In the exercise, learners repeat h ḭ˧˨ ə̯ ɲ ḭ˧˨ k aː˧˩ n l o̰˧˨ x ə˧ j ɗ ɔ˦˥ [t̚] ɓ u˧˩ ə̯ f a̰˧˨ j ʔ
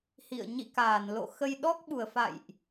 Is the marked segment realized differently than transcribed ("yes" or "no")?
yes